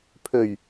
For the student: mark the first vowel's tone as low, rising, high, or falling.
low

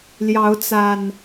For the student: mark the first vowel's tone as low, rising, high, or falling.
rising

